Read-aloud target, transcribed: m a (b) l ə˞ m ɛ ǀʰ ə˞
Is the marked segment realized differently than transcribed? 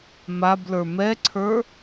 no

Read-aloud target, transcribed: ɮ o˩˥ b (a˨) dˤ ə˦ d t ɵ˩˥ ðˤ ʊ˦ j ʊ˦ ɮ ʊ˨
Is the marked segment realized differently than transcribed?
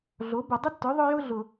yes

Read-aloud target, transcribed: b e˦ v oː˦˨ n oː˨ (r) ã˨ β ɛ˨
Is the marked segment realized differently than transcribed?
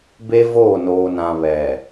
yes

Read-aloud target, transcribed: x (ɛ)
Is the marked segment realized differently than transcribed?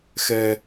no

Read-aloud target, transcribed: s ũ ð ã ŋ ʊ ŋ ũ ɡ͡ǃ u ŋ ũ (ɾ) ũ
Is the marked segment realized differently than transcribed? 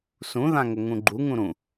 no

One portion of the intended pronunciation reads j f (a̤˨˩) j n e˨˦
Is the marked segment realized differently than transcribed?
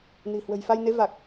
yes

